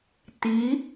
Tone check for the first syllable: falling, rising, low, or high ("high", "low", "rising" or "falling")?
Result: rising